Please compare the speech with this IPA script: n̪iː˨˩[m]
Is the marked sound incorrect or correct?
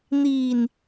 incorrect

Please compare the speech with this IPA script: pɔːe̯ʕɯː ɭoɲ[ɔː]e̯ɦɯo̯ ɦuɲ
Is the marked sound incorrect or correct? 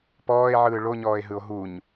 correct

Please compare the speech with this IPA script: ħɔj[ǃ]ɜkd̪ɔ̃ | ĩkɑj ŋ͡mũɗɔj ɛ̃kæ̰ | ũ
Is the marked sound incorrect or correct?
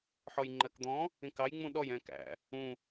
incorrect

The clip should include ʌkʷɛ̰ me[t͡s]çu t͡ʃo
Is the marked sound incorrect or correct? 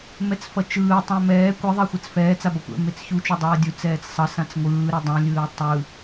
correct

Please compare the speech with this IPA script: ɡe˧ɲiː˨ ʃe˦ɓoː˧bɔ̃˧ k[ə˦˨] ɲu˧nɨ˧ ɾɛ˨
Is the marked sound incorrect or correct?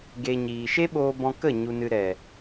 correct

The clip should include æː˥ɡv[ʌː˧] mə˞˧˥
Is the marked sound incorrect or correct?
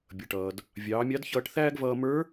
correct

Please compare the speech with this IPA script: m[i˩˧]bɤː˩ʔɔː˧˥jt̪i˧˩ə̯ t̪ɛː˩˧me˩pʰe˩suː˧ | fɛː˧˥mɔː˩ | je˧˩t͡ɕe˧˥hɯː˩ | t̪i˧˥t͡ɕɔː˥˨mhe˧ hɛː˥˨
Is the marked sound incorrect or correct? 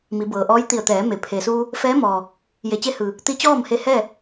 correct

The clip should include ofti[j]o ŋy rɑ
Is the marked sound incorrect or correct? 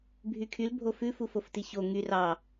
incorrect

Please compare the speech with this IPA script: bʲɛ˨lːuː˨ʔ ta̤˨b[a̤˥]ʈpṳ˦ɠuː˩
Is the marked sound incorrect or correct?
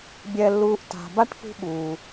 incorrect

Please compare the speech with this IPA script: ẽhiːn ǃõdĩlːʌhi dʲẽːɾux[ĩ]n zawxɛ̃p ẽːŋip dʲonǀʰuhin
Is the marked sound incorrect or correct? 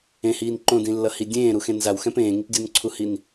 incorrect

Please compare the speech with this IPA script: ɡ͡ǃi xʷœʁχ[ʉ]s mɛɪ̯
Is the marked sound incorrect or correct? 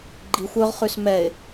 correct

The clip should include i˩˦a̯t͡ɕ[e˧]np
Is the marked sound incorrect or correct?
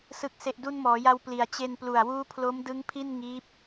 correct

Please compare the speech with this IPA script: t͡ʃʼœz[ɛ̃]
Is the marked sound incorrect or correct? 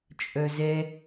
incorrect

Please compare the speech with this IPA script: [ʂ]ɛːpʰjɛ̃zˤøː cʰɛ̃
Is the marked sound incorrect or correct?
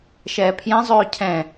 incorrect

